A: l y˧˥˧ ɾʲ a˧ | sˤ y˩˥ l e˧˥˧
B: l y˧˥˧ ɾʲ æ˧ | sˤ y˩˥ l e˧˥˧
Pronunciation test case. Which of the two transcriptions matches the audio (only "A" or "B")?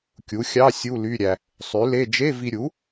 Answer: B